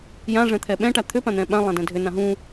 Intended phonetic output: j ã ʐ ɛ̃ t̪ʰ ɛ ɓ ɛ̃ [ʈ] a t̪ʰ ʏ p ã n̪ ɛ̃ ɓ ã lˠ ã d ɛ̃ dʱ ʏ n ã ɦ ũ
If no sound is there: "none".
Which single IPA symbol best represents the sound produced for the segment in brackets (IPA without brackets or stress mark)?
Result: ʈ